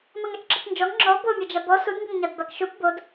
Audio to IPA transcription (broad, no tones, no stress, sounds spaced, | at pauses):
m ɐ ŋ a t͡ʃ ǁ ə t͡s n d͡ʒ ɔ ŋ ŋ͡ǁ ɔ b o mʲ ɐ d͡ʒ a b ɔ s u d ŋ ɡ ɐ ŋ ɲ a d b a k ʃ u p b o d